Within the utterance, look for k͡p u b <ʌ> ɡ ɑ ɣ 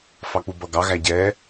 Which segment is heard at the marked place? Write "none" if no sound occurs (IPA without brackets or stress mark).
ʌ